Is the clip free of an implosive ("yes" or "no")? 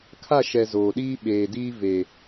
no